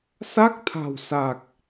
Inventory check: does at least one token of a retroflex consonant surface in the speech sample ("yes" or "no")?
no